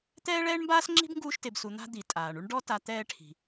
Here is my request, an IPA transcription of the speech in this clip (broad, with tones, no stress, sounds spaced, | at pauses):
t̪ ɛː˦ ɭ ɛː˦ ɳ m b aː˦ s ŋ͡ǁ i̤˥ b ŋ ɡ uː˦ ʃ t e˨ b s u˨ n̪ a̤˦ d̪ i˩ tʼ aː˩ ɳ u˥ ɳ ɖ ɔ˦ t a˨ t̪ ɛː˦ ʈʰ i̤˩